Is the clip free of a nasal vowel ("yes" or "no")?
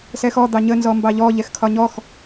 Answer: yes